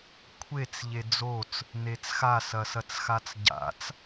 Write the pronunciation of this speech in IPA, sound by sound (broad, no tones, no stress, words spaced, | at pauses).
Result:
kʷʰet͡s ʎed͡zot͡s | net͡sxa sɐsɐt͡sxat͡sɟa̰t͡s